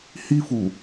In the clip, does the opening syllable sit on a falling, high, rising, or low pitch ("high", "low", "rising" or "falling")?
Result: high